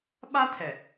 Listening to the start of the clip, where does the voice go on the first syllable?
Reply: high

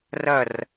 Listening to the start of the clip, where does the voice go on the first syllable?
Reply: falling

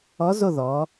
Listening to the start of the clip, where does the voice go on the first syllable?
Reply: rising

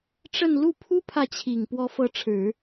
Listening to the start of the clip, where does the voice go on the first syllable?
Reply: falling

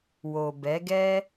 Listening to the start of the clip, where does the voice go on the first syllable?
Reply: low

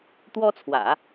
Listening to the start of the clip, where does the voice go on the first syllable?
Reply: high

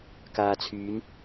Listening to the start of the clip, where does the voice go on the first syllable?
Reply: low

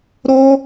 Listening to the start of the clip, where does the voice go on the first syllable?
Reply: high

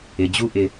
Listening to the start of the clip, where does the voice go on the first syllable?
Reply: low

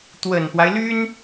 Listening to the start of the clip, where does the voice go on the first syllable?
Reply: low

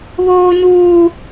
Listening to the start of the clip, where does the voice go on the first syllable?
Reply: high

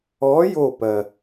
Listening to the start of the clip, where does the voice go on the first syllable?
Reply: rising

